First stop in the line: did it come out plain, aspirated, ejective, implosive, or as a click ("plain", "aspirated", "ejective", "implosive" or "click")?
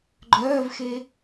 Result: click